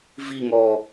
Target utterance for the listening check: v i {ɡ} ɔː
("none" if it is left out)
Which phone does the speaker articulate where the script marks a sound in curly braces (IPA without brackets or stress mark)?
ŋ